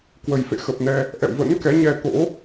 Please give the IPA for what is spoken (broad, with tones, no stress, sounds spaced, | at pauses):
k w ə˨˩ j f ḛ˧˨ x ə˨˩ p̚ n ɛ˧ | ʔ ɛ̰˧˨ w v ə̰˧˥ n k ɛ˨˦ ɲ ɛ˧ t̪ o̰˧˥